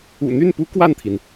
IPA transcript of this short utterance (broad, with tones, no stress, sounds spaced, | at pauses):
ṵ˨˩ n̪ y˥˩ n p u˥ k w a˥˩ n t̪ʰ i˩ n